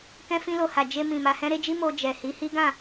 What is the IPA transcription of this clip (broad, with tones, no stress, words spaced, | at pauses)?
kɛ̃˧fĩ˧lo˨ha˨ d͡ʒe˧ mĩ˨ma˧hɛ̃˦ ɾe˦d͡ʒi˦ mo˧ d͡ʒɛ˨ hi˨˦hi˦ɡã˦˨